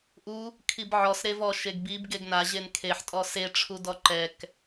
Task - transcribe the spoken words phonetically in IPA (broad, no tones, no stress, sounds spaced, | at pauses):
ʔ u | kʰ i b ʕ ɔ s ɾ e v ɔ ʃ e ɡ b i b ɡ e ɡ n a ʑ e n kʰ e ħ tʼ ɔ s e ʈ͡ʂʰ u d ɔ ǃ ɛ k